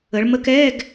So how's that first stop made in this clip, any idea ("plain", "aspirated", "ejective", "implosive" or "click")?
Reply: plain